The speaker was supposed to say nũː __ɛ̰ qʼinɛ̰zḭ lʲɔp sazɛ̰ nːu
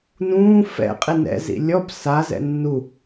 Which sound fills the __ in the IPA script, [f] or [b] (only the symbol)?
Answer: f